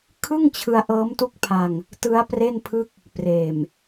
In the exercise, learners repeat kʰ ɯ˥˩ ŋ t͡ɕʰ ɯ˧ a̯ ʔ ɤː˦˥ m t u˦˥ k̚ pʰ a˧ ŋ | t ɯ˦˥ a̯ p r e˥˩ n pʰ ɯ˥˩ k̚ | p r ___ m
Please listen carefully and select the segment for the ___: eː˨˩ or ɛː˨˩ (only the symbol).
eː˨˩